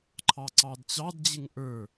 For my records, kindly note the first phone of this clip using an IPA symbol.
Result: ǃʰ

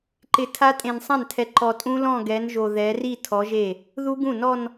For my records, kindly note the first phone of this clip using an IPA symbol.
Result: ǃ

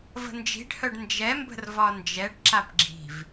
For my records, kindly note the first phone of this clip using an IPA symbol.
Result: v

